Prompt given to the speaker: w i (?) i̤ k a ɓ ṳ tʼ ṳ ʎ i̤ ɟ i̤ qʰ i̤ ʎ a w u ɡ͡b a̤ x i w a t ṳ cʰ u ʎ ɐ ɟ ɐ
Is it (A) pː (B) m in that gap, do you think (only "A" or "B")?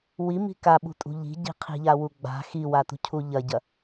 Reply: B